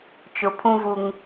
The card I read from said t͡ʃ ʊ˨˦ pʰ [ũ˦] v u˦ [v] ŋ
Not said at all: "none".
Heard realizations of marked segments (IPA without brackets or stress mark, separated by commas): ũ˦, none